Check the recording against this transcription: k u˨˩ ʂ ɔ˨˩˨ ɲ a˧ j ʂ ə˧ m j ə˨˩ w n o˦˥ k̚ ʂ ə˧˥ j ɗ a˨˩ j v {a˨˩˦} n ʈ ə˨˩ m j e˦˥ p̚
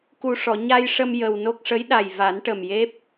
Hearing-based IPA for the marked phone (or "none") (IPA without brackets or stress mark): a˨˩˦